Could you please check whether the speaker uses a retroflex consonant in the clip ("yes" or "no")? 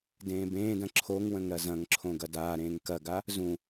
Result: no